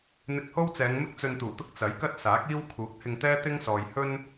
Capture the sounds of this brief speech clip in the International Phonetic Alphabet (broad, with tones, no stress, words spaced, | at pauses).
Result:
n̪ɪ˧k̚ho˥wt͡sɛː˨˧ŋmɪ˥k̚ t͡sɵ˧nt̪uː˨˩t̪ʊ˥k̚ t͡sɐ˨˥jkɐ˥t̚ saː˨˥k̚iː˥wkʰuː˨˥k̚ hɪ˧ŋt̪ɛː˥t̪ɪ˥ŋsɔː˨j hɵ˥n